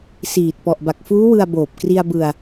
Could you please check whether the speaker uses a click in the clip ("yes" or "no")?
no